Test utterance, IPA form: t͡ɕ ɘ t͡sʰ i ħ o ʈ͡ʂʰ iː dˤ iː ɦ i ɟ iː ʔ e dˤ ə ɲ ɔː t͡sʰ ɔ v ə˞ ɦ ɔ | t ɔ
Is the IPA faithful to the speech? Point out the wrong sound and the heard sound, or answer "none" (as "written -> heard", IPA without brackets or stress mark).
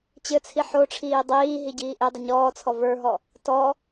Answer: none